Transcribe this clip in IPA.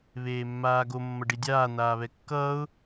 βeːmːaːɡo mːʌɖidʲaː n̪aːβɛkːʌːʊ̯

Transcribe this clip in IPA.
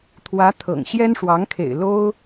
t̪ʰwä˧˥ t̪ʰɤ̰˨˩ŋɕjɛ˥nʂwɑ˧˥ŋkʰḛ˨˩ɪ̯ lo˥ʊ̯

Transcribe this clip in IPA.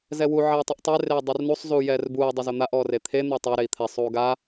zɛwu ʕeːtˤuʔtˤe reːdˤurnusˤ zuːjɛːrbuːi̯ dˤɛzon̪aʔ ɔːret̪ʰe n̪ʊjtˤa ɾei̯t̪ʰɛ sˤuːɡa

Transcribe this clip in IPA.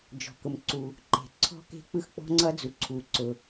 d͡ʒɔ̤˩kʊ˩mǀu˩ | ǃe̤˩ ǀʰɔ̤˥ke̤˥ k͡pɯ˥xk͡pɔ̤˥ŋ͡ǀʌ˥d͡zu˩ ǀʰu˩ ǀʊ˩

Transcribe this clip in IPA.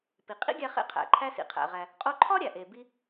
pi˩qʼḭ˥ ɡʲæ˧χḛ˧qʰæ̰˩ ǃʰæ˧sḭ˩qʰæ̰˩ʁæ˩ | qʼo˥ ǃʰɒ˥ ɾʲæ˩ʔe˩ bi˧

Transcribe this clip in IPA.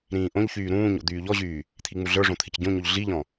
ɾĩːʔõʎçyː ɾũːɲo̰ d̪yːʎɔʑyː | t̪ʰiŋ͡muɮə˞ʐõ t̪ʰɪcɟõɲoʎ ɮiʎɔ̃

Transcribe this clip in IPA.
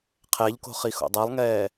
qʰɛʎko̤ χixo̰dˤɛlˠŋɛː

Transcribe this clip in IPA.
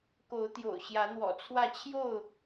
ko˨˦ʊ̯t̪jo̰˨˩ʊ̯ ɕjä˨˦n̪wɔ̰˨˩t͡sʰwä˥˨ t͡ɕʰjo˥˨ʊ̯

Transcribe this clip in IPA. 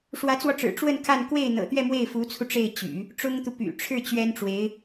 ʂwä˧˥t͡swɔ˧ʈ͡ʂɻ̩˨˩ ʈ͡ʂwə˥˧n kʰa˥˧n kwe˥˩ɪ̯n̪ɤ̰˨˩t̪ɥɛ˥˧ mwe˥˩ɪ̯fu˧˥t͡sʰu˧ ʈ͡ʂe˥˩ɪ̯ t͡ɕy̰˨˩˦ | ʈ͡ʂʊ˥ŋt̪u˨ py̰˨˩ ʈ͡ʂʰɻ̩˥˩ t͡ɕɥɛ˥nʈ͡ʂwe˧˥ɪ̯

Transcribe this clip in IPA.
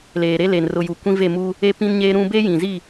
leː˨ɾe˦le˨n rʊ˨ ju˨ kʷĩ˦ve˦˨mu˦ | e˦ pĩ˦nɲeː˦ɾũ˦ be˦jĩ˨zi˦˨

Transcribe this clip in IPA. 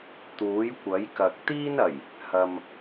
t̪uː˨˥jkʷɐ˨˥jkɐ˨k̚ t̪iː˥nɐ˨˩j | hɐ˨m

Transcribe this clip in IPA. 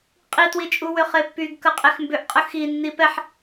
qʼitwit͡ʃʼu wʏχepːyɡ kəqʼexmbʏʔ qʼəxi nːipɛħ

